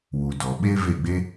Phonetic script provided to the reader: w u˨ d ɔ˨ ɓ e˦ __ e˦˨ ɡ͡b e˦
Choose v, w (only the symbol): v